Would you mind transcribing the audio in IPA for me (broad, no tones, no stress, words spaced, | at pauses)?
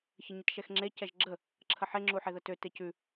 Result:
çəɲətʃɛxŋ͡ǁe cɛʒɡ͡ǁə | ǁʰəħe ŋ͡ǁuħeðətø tecʉ